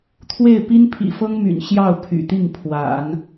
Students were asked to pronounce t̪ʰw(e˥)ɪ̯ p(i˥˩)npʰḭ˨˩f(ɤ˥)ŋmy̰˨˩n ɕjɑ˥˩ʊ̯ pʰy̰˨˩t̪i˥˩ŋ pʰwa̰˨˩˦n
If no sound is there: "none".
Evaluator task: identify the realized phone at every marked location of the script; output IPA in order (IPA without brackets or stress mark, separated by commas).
e˥˩, i˥, ɤ˥